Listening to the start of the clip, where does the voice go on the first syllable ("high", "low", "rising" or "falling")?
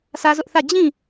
high